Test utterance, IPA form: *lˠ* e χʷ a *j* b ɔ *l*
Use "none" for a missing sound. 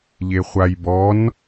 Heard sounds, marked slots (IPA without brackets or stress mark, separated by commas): ʎ, j, n